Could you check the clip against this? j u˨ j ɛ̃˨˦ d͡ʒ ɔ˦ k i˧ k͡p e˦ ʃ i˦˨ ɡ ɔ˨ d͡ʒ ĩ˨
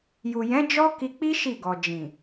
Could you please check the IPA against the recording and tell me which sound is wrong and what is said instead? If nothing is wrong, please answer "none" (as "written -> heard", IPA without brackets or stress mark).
e˦ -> i˦